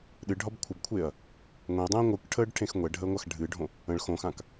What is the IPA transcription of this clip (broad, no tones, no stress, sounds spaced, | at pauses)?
ɗ ɨ ɖʱ ɒ b kʷʰ ɘ b kʷʰ e ɐ̯ | ŋʷ ẽ ɐ̯ dˤ ɛ̃ː ŋʷ ɯ k ʈʰ əː ɖ ʈʰ ẽ x ŋʷ ɛ ɖʱ əː ŋʷ a x ɖʱ ɨː ɖʱ õ | ə̃ ɭ x õ x ã k